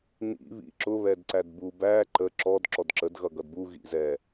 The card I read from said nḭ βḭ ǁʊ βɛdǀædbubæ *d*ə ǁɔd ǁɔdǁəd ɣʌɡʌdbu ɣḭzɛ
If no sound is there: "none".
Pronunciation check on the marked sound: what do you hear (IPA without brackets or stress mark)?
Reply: ǃ